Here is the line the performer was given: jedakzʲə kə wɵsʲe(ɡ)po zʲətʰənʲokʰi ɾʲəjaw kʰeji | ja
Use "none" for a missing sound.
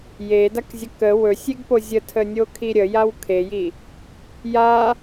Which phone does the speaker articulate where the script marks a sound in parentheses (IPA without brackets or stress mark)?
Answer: ɡ